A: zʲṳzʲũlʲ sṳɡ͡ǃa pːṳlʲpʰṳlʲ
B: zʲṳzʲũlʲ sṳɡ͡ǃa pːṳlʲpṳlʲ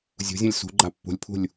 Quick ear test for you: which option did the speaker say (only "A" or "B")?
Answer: A